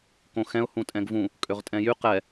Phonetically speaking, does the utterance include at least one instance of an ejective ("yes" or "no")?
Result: yes